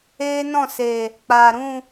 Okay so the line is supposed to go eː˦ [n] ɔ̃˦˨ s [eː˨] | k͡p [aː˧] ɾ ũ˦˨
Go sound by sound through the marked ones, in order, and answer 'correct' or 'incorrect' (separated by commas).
correct, correct, incorrect